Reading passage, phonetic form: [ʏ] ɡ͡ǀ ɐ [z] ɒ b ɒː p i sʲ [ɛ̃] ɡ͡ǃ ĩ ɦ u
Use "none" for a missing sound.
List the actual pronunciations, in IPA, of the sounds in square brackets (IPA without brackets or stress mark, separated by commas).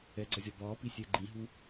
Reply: ɛ, zʲ, ɛ